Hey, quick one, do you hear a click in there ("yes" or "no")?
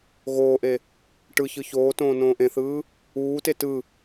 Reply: no